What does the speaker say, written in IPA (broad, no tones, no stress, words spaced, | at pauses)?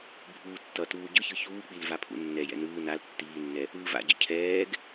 bʱuːtːʌtuː ɟɯçɯ çuːk͡pil vapʰṵnːɛjɛ̰ nɯː nal tːiːnːɛ | ɯːva̰ɟʌ cʰɛːɡ